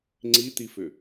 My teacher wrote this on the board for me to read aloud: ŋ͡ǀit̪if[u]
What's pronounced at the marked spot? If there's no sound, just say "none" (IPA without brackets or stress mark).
ʏ